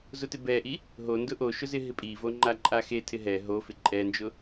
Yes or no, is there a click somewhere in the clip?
yes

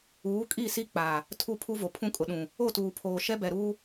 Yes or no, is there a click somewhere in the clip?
no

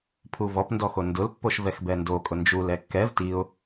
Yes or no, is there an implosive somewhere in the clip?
no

